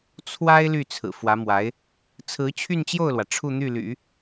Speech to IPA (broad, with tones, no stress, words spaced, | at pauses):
t͡sʰwa˥ɪ̯ ly˥˩t͡sʰɹ̩˨˩fwä˧˥ mwa˧˥ɪ̯ | t͡sʰɹ̩˧˥t͡ɕʰy˥˧nt͡ɕjo˥˩ʊ̯lwä˩ ʈ͡ʂʰu˥˧n̪y˥˩ly̰˨˩˦